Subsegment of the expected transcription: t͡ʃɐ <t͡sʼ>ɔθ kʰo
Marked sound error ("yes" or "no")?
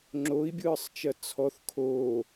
yes